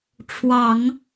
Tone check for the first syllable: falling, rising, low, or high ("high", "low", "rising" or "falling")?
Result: low